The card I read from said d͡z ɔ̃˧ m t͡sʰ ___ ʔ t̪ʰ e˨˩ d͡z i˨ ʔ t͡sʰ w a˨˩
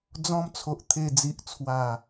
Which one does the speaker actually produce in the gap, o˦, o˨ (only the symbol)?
o˨